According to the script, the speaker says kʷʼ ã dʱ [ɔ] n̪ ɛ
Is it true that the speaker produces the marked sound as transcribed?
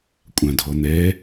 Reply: yes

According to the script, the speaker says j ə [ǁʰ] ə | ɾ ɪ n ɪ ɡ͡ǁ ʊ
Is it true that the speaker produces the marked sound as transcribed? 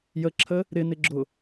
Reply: yes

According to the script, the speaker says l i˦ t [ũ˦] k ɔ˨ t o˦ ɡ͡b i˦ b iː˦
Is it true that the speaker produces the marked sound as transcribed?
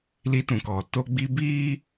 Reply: no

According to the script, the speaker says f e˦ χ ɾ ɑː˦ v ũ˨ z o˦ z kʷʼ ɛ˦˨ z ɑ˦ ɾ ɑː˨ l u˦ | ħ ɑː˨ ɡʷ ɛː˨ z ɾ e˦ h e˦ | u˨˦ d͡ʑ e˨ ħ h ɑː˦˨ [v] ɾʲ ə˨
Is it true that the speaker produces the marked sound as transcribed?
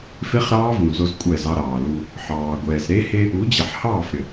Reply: no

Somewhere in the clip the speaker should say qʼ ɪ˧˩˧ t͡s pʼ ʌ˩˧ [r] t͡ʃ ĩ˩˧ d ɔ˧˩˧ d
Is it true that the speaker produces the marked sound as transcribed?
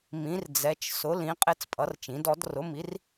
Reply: yes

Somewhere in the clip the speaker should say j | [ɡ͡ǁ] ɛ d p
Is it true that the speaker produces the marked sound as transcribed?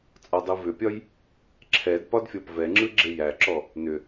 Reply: no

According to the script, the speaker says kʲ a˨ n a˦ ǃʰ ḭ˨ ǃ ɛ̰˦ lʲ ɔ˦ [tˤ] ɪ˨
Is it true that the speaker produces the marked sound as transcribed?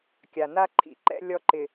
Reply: no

